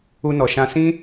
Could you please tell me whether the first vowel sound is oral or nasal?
oral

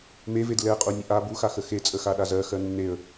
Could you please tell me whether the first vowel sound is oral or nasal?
oral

